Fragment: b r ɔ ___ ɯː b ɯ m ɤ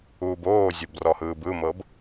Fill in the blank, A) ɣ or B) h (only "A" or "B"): B